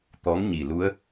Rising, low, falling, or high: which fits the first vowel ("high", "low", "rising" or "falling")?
rising